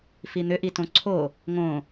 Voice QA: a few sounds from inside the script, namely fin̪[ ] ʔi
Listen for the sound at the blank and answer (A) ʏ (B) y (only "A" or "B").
A